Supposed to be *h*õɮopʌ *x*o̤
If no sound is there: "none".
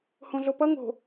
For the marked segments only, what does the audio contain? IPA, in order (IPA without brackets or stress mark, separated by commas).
h, ŋ